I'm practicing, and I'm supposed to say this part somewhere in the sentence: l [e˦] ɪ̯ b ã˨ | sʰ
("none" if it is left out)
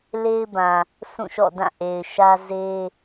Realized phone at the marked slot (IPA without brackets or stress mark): e˦